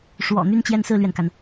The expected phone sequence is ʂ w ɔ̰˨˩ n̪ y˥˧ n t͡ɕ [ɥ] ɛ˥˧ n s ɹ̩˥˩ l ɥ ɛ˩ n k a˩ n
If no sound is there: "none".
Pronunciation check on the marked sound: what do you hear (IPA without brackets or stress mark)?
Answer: j